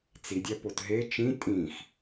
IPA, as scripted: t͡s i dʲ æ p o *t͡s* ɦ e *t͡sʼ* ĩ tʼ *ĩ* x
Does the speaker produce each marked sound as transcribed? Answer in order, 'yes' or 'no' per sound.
no, no, yes

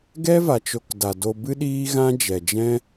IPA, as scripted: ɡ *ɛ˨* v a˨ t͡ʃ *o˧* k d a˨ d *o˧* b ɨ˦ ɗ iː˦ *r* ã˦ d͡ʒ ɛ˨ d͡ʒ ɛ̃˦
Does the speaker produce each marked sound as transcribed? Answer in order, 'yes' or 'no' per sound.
no, yes, yes, no

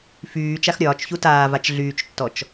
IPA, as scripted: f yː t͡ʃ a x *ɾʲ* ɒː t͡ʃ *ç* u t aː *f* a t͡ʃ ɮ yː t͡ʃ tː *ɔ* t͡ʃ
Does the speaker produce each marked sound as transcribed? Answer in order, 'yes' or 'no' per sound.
yes, yes, no, yes

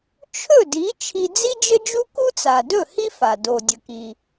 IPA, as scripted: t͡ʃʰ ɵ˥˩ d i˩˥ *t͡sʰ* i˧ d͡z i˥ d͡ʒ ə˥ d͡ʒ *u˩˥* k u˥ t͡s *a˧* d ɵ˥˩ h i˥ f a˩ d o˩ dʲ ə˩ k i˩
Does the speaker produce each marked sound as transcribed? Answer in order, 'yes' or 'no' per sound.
no, no, no

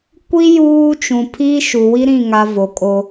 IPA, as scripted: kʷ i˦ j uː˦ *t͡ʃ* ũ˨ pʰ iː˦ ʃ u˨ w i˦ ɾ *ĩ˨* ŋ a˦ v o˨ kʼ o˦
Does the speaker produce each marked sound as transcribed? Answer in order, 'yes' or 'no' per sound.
yes, no

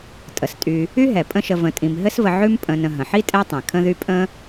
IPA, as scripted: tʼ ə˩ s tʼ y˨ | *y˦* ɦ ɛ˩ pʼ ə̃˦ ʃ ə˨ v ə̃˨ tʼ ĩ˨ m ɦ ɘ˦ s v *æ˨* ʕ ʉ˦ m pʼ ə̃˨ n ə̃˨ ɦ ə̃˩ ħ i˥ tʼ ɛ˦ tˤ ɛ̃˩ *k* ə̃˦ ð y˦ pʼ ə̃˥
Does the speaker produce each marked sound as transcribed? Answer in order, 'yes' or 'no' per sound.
yes, no, no

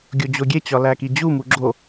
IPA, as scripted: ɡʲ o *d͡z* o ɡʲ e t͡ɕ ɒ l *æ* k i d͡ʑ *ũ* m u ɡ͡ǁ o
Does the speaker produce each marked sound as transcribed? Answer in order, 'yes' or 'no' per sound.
no, yes, no

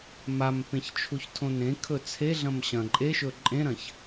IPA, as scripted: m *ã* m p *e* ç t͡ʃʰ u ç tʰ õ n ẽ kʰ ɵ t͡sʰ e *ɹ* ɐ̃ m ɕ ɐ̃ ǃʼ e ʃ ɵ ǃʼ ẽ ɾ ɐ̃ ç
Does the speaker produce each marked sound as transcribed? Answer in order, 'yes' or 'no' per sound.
no, no, no

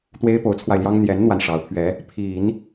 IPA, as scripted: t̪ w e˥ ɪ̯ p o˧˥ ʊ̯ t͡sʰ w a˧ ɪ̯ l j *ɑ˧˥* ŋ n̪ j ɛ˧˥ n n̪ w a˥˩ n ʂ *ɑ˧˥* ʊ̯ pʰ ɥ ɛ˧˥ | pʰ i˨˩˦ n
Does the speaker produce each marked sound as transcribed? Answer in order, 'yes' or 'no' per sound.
no, yes

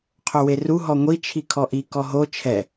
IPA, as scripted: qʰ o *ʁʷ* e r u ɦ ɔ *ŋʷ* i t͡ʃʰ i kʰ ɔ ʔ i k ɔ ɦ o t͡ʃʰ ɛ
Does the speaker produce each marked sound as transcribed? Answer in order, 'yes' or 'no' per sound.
no, yes

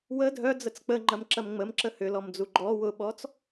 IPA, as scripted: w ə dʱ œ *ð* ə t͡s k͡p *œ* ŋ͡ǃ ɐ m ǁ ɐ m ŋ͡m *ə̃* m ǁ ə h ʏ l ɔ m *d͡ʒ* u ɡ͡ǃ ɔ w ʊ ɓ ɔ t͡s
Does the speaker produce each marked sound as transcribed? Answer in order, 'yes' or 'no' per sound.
no, no, no, no

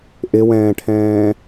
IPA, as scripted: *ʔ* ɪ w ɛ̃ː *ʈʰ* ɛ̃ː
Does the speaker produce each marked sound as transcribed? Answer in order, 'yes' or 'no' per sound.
yes, yes

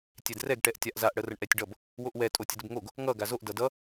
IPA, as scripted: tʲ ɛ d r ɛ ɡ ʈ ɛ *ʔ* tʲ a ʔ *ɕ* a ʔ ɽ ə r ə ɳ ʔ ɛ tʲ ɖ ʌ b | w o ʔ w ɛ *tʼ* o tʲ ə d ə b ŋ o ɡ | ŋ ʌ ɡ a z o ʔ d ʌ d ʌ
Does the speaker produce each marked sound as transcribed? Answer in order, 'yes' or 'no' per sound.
yes, no, yes

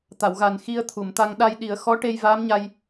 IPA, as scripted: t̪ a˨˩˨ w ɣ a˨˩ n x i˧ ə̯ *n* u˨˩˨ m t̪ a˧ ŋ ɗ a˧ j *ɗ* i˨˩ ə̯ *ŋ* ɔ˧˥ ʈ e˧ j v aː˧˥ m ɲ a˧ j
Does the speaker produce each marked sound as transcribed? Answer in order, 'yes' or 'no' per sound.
no, yes, no

